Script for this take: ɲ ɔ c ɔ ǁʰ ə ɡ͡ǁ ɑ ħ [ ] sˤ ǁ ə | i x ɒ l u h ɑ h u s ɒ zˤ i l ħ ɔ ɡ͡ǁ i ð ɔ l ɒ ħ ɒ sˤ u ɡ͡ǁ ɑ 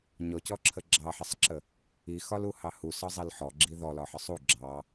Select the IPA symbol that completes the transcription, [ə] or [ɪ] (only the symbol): ə